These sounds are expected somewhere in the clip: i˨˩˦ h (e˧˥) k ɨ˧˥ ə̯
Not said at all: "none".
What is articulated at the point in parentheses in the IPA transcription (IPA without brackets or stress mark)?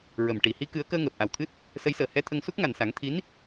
i˧˥